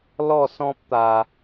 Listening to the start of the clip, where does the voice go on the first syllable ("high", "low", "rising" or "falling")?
falling